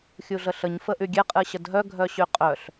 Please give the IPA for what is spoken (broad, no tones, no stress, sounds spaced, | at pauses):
xʲ u ɮ ə ɬ ə ɲ f ə ʔ y ɡʲ ɛ qʼ ɨ ɕ ə d ɦ œ ɡʱ œ ɕ y qʼ œ ɬ